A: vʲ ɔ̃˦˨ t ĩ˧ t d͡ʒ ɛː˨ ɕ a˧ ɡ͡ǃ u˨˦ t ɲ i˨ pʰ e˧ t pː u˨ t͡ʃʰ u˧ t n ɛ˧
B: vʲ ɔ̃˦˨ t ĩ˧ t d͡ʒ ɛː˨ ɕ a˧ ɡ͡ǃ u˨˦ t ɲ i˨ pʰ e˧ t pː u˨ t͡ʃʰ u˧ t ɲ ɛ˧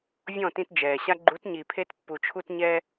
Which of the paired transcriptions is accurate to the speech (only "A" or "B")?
B